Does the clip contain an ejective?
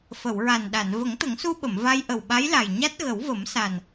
no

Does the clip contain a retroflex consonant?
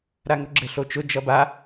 no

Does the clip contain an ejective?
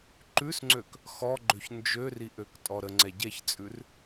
yes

